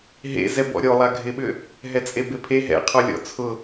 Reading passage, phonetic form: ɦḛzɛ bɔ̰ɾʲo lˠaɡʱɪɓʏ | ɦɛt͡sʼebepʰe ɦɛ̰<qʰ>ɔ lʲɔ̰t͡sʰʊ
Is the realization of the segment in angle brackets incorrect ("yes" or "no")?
no